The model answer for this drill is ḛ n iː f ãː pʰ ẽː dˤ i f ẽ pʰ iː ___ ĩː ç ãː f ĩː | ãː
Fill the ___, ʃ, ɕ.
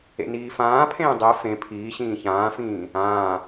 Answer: ɕ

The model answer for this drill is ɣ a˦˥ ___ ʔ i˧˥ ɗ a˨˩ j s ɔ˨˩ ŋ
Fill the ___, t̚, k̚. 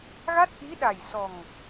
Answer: t̚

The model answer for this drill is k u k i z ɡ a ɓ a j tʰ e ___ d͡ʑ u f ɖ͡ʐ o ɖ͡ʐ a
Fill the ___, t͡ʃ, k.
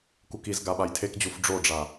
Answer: k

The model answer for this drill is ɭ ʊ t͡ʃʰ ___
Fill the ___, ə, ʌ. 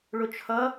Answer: ʌ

